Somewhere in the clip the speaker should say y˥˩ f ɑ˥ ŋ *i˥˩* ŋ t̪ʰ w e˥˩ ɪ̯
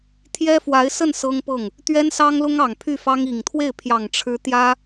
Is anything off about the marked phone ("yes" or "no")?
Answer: yes